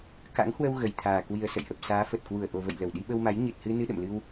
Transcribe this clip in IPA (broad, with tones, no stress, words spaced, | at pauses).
ka̰˧˥ŋhwə˧w ɣə˨˩jt̪ʰaː˨˩ kwi˨˩ə̯sə̰˧˨jʔə˨˩p̚ saː˨˦fə˨˩t̚ kwu˧˩ə̯ʔo˨˩və̰˧˨j lə˧˩wɗi˧ɓə˧wma˨˦j ɲɨ˨˩t̚hɨ˧ nɨ˧ɗə̰˧˨mlɨ˧w